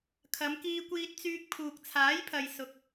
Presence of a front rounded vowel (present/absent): present